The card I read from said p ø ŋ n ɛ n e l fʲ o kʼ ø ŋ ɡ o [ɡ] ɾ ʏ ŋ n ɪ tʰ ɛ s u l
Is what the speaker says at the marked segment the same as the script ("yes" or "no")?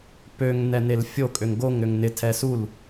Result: no